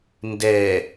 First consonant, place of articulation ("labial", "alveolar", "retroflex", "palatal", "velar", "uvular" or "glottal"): alveolar